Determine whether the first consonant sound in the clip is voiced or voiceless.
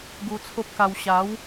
voiced